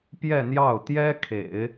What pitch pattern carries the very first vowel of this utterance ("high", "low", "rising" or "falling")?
falling